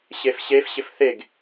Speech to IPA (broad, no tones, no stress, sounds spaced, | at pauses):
ɕ e f ɕ e f ɕ ɪ f θ e ɡ